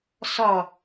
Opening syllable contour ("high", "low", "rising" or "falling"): low